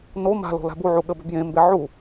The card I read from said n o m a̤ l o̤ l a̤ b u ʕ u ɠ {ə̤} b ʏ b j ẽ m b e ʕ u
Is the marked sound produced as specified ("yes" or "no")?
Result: no